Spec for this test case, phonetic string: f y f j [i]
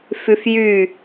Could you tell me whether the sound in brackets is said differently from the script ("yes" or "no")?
yes